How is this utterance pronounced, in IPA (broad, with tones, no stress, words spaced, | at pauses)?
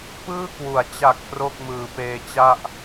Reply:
pɯː˥˩kwu˩˦a̯ t͡ɕa˨˩k̚ pro˥˩k̚mɯː˩˦peː˧t͡ɕa˥˩ʔ